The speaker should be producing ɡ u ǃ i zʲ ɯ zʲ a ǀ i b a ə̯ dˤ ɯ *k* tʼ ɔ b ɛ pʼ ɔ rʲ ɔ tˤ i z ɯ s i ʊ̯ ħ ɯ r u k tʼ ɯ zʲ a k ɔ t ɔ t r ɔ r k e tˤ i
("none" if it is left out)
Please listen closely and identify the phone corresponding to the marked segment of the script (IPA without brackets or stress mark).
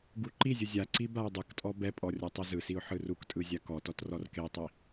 k